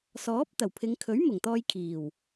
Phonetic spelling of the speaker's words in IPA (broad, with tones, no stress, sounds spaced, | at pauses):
s ɔː˨˥ p̚ t̪ ɐ˨˩ w pʰ ɪ˨˧ ŋ kʰ ɵ˨˥ ɥ m ʊ˨˩ ŋ t̪ ɔː˧ j kʰ iː˨˩ w